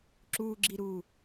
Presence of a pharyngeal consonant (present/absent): absent